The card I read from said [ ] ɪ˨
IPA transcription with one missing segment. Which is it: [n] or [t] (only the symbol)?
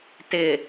t